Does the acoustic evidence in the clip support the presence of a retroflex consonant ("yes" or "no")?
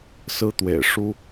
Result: yes